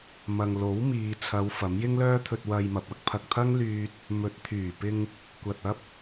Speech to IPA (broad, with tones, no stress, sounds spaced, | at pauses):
m ɐ˨ ŋ l o˨˥ w m iː˨ t͡sʰ ɐ˨˧ w f ɐ˨˥ m j ɪ˥ ŋ l œː˥ t̪ʰ ɵ˧ t̚ w ɐ˧ j m ɐ˨ p̚ ɐ˥ k̚ pʰ ɐ˨ k̚ t̪ʰ ɐ˥ ŋ l yː˧ t̚ | m ɵ˨˥ t̚ t̪ʰ yː˨˩ p ɪ˧ ŋ | kʷ ɐ˨ t̚ ɐ˥ p̚